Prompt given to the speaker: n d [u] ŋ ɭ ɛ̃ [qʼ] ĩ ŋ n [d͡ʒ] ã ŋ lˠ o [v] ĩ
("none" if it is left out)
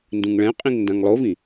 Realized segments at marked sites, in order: ũ, qʼ, d, v

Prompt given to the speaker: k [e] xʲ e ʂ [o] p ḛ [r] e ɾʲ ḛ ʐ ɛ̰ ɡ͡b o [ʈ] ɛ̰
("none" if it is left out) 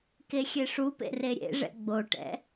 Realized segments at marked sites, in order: e, u, r, ʈ

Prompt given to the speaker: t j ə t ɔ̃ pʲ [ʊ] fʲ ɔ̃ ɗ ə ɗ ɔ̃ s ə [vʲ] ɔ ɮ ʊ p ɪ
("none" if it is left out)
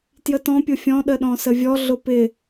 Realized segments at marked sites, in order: ʊ, vʲ

